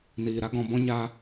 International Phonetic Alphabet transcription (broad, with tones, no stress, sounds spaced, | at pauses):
n iː˨ ɾ a˦ ɡ ɔ̃˧ b ɔ̃˦ ɲ a˦